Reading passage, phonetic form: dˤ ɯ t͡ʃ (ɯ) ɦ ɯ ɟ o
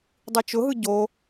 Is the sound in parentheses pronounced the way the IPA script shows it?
no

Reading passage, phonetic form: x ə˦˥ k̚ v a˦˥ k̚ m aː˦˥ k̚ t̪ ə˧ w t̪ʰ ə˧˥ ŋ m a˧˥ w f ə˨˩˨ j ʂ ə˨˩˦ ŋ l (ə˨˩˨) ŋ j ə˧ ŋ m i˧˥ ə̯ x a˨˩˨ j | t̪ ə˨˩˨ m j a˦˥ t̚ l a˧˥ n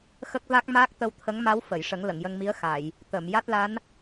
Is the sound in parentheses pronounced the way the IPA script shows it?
yes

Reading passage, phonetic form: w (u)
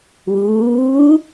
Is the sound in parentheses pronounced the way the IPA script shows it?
no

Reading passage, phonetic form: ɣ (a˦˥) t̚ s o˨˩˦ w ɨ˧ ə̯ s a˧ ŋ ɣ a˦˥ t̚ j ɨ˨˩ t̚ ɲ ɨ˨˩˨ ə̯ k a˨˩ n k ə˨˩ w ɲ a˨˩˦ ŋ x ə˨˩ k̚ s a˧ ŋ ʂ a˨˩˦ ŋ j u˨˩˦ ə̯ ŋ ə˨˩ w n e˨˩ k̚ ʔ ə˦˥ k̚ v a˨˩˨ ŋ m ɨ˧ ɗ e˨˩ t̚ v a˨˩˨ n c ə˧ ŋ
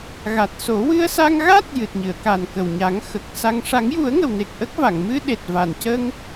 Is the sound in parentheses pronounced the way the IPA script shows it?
no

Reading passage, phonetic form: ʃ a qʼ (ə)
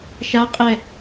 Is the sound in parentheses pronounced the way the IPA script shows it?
no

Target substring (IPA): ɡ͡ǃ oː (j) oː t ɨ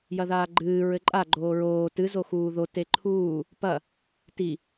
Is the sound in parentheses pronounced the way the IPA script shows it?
no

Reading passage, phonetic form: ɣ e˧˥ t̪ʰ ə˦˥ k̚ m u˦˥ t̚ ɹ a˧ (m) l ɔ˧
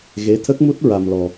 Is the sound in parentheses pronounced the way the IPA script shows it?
yes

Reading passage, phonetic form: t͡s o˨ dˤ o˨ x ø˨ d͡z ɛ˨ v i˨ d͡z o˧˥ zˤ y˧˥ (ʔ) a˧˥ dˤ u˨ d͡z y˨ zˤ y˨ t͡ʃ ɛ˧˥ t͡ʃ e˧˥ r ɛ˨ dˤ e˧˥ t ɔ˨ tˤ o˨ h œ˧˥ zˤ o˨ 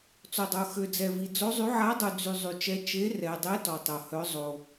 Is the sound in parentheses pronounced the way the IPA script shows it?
no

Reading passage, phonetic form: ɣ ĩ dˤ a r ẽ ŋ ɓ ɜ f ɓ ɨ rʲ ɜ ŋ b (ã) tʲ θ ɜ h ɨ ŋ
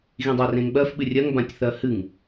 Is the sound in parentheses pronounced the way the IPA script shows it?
yes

